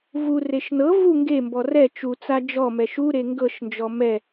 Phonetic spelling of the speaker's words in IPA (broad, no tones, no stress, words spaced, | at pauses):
vureʃ nɤ vu ŋɡembɔ rɛ t͡ʃut͡sa d͡ʒɔmɛ ʃuɾe ŋɡɤʃnd͡ʒɔ mɛ